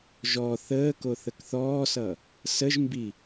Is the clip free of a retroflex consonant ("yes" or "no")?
yes